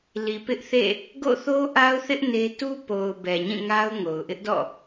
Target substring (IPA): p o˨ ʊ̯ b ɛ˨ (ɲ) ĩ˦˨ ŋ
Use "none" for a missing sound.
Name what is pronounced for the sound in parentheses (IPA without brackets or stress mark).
ɲ